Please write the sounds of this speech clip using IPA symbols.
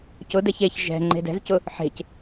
cʊdɛç eç ʒɛ̤ ŋ͡ǃe̤dɛ̤zcʊ | ħe̤c

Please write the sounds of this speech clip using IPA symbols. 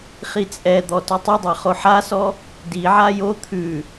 χit͡sʼɛd̪ɔ tytˤʉdˤa χoħasɔ | diʕa jo t̪ʰʉ

